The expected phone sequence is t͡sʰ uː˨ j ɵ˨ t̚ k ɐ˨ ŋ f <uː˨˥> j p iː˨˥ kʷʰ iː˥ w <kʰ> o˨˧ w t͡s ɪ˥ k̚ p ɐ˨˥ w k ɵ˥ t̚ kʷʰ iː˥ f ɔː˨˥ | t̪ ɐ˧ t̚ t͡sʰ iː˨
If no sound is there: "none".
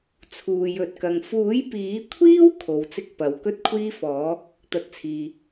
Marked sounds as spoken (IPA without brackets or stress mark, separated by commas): uː˨˥, kʰ